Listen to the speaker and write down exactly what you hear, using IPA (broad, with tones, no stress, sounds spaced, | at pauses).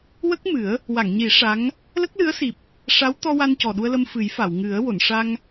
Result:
w ə˦˥ k̚ m ɨ˨˩˦ ə̯ | w a˨˩˨ ŋ ɲ i˨˩˦ ʂ a˧˥ ŋ | l ə˦˥ k̚ l ɨ˧˥ ə̯ s i˨˩ p̚ | ʂ a˧˥ w t̪ ɔ˧ w a˧ n c ɔ˨˩ ɗ u˧ ə̯ l ə˧ m f ɨ˨˩˦ j f a˨˩˨ w ŋ ɨ˨˩˦ ə̯ w o˨˩˨ n ʂ a˧ ŋ